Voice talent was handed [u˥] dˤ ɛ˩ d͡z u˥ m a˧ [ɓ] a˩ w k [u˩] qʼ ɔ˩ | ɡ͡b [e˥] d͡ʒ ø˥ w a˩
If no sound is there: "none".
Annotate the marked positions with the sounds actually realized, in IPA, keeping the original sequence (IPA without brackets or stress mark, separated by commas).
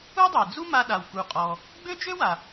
u˥, ɗ, u˩, ø˥